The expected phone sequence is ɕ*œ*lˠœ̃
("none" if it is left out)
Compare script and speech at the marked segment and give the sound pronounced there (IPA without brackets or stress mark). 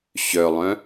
œ